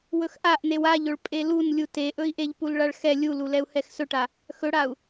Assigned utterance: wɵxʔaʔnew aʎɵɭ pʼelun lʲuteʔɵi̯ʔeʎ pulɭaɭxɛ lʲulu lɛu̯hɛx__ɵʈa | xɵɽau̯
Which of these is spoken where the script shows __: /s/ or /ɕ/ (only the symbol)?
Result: s